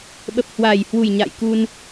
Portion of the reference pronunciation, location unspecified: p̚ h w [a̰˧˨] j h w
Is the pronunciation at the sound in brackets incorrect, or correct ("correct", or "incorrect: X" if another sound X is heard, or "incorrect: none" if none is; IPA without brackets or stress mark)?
incorrect: a˨˩